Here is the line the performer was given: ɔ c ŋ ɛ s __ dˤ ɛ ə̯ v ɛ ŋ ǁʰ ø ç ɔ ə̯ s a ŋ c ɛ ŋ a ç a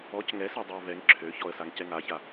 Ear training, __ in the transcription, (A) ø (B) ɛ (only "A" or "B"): B